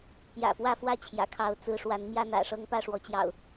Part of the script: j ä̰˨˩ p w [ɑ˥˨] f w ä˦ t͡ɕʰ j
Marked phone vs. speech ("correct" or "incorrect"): incorrect